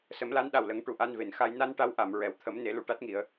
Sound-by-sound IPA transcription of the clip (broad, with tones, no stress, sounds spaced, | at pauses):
s ə˨˩˦ m l a˧˥ n ɗ a˨˩ w l ə˨˩˦ ŋ ʈ u˨˩ ʔ a˧ n v e˨˩˨ n x a˧ j n a˧ n ʈ a˧˥ w ʔ a˨˩˨ m ɹ ɛ˨˩˨ w t̪ʰ ə˨˩˦ m n e˨˩˦ l u˨˩˨ ʈ a˦˥ t̚ ŋ i˨˩˦ ə̯